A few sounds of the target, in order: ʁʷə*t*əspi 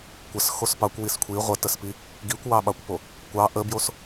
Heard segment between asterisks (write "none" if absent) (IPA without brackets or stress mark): t